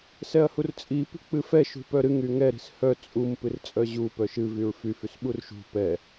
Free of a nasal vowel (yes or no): yes